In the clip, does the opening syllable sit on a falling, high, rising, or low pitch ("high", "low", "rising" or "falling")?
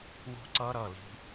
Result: falling